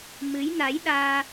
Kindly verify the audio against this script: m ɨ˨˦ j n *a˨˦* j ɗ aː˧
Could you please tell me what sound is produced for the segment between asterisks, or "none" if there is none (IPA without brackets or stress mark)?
a˨˦